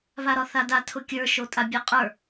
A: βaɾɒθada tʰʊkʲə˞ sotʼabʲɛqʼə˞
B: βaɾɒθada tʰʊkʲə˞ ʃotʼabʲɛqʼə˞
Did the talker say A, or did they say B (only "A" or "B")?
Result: B